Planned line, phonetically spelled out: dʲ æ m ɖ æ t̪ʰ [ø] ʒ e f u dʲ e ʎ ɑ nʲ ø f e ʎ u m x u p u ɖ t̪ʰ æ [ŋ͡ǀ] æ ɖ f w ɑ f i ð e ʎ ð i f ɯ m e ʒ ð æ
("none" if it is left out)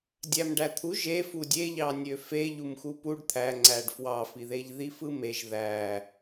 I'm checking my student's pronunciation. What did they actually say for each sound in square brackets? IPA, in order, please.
u, ŋ͡ǀ

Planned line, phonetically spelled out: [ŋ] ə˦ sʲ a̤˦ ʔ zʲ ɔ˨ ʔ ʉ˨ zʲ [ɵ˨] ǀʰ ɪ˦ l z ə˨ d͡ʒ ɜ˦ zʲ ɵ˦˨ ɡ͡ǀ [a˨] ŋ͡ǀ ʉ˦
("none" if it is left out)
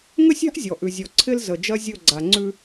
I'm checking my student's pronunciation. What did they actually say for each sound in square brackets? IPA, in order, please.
ŋ, ɔ˨, a˨

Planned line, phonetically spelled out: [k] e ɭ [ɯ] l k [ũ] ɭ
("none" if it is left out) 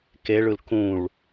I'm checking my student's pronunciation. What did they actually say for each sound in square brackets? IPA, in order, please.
k, ɯ, ũ

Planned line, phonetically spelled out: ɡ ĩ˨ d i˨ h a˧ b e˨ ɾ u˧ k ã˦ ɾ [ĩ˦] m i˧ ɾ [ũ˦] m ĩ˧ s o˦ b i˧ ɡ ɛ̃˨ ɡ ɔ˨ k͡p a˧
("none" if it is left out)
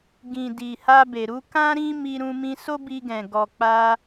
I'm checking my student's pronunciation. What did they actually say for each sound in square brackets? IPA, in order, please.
ĩ˦, ũ˧

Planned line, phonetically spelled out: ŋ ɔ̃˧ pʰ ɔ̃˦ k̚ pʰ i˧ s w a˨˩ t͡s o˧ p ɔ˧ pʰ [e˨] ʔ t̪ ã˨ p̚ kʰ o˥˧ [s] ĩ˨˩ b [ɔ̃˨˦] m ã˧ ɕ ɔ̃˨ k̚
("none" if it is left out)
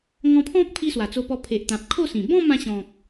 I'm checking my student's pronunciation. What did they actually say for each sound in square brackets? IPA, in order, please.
e˨, s, ɔ̃˥˧

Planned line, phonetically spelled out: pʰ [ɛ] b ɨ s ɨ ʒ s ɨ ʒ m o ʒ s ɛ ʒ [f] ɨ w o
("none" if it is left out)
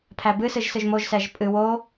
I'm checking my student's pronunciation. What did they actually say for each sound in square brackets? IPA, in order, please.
æ, pʼ

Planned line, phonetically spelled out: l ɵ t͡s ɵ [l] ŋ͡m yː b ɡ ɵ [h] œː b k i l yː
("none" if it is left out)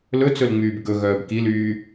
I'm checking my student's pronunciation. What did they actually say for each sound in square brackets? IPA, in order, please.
l, ɣ

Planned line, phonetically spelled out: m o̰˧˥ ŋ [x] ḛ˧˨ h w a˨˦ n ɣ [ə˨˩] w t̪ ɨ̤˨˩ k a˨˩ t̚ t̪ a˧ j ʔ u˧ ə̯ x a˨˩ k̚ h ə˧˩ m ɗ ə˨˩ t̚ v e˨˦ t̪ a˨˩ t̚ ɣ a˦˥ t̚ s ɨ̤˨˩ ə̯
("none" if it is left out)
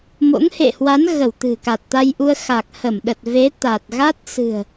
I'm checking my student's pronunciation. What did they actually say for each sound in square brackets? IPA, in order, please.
h, ə˧˩

